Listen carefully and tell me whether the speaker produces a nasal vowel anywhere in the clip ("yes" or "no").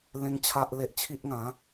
yes